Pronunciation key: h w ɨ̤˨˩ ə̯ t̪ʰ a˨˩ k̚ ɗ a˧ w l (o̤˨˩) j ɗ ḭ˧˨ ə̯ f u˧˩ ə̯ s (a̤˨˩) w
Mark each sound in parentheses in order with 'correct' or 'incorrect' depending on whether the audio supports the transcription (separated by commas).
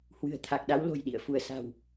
correct, correct